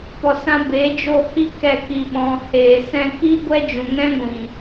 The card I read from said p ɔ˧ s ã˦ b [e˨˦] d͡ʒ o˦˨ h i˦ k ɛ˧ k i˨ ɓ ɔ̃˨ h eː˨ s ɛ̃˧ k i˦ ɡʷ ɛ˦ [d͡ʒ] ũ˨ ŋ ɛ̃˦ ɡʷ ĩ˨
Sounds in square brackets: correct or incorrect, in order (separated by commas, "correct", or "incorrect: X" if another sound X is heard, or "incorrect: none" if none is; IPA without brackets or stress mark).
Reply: correct, correct